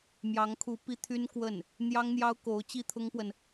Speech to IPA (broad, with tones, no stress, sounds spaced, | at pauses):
m j ɑ˧˥ ŋ kʰ u˧˥ p i˥ t̪ʰ y˥ n k w ə˥˩ n | n̪ j ɑ˥ ŋ n̪ j ɑ˥ ʊ̯ k o˧˥ ʊ̯ t͡ɕ i˥ t̪ʰ ʊ˥ ŋ p w ə˨ n